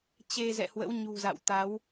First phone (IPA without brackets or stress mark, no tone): t͡ɕ